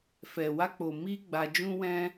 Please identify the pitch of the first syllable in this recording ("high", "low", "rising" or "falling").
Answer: low